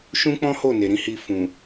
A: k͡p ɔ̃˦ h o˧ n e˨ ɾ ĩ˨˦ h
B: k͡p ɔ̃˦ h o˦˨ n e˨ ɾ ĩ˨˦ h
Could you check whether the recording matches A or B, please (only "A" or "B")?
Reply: B